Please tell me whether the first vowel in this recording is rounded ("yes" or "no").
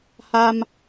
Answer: no